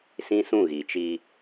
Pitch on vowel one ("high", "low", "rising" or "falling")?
high